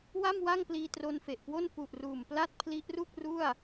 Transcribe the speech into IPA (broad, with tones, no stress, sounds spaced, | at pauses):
w a˥˩ m w a˥˩ ŋ p l iː˧ t r o˧ n f e˨˩ ʔ k w o˥˩ n p u˨˩ ʔ r uː˨˩ m p l a˥˩ t̚ pʰ l i˦˥ ʔ r u˥˩ k̚ r u˥˩ a̯